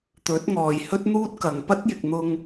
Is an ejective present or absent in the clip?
absent